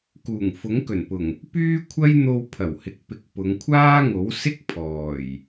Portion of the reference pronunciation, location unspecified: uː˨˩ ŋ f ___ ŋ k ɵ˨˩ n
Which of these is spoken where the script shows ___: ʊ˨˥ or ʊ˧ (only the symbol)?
ʊ˨˥